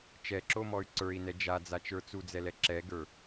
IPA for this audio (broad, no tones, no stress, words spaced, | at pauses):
t͡ʃɛǁomɔy̯ ǀə˞i̯nɛ d͡ʒad͡zat͡ʃə˞ t͡sud͡zɛlɛ ǁɛɡə˞